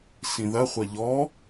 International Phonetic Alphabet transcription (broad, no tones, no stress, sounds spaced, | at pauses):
s ĩ ð ɐ χʷ ɐ ʎ ɔ